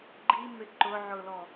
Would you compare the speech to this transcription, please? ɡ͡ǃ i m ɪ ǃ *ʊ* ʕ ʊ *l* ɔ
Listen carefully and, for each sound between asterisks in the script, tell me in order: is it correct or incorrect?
correct, correct

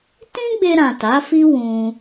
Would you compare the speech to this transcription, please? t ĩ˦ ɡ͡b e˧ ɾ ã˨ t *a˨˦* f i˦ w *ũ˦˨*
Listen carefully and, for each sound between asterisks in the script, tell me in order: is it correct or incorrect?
correct, incorrect: ũ˧

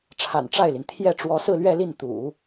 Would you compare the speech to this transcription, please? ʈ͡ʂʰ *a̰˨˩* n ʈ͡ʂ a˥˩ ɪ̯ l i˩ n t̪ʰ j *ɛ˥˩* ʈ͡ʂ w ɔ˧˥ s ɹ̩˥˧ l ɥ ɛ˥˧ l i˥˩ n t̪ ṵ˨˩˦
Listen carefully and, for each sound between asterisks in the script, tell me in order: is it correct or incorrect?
correct, correct

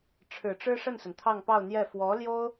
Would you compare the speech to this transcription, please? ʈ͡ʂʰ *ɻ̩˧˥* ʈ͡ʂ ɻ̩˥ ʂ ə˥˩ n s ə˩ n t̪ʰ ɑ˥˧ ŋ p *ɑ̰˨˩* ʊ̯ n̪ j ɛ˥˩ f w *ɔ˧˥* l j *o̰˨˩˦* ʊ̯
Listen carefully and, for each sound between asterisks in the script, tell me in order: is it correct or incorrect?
incorrect: ɻ̩˨˩, incorrect: ɑ˥˧, correct, incorrect: o˥

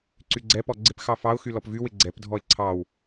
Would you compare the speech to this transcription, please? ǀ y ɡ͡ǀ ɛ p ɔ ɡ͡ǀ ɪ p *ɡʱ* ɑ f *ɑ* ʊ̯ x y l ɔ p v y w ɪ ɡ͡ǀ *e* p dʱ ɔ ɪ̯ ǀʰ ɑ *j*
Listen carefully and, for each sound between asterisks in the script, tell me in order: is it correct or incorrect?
incorrect: x, correct, incorrect: ɛ, incorrect: w

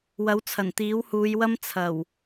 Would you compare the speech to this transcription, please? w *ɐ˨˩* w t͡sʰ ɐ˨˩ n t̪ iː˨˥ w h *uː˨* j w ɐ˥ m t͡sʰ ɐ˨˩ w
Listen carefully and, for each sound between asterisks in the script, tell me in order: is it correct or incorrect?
incorrect: ɐ˨˥, incorrect: uː˨˧

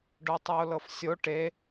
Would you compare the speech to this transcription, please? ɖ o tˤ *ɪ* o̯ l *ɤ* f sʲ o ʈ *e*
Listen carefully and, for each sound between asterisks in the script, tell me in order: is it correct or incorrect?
incorrect: ɛ, correct, correct

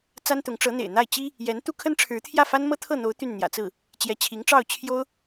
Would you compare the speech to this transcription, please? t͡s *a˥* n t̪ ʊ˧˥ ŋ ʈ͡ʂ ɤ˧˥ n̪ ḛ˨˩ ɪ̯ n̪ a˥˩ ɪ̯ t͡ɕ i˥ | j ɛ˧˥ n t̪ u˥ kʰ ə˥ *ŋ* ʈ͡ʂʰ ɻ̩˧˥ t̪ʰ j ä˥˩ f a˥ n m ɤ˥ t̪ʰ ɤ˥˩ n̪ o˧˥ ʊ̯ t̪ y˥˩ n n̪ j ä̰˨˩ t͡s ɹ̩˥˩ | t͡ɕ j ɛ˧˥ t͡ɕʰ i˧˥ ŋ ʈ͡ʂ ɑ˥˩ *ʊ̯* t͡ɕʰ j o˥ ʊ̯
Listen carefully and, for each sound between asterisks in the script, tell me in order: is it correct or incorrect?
correct, incorrect: n, correct

